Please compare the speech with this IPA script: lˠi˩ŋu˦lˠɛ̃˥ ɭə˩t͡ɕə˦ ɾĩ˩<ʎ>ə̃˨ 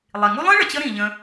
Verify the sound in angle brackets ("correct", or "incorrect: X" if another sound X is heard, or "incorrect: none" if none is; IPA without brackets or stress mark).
correct